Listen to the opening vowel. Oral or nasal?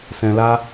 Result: nasal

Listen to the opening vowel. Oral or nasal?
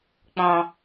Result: nasal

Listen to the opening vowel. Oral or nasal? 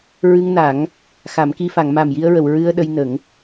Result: oral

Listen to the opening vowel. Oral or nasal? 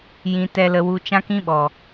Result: nasal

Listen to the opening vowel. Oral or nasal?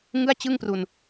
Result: oral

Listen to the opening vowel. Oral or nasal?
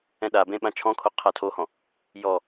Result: nasal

